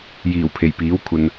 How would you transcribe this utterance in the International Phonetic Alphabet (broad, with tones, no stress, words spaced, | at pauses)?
jiː˨˩wpʰe˨˩jpiː˨˥w kʷʰɐ˨n